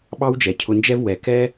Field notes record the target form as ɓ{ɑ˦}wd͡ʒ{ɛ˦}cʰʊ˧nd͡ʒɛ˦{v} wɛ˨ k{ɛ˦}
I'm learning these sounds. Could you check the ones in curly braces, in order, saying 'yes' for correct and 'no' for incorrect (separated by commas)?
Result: yes, no, yes, yes